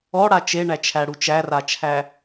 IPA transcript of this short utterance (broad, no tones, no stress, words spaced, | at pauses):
ɔɽa t͡ʃeɳæt͡ʃʰæɽu t͡ʃærat͡ʃʰæ